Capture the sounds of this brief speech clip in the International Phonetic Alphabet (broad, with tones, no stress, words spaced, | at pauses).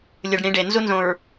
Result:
lʲɯ˨ɖɽĩ˨˦ɖe˨ nzu˦nzõ˨ɹ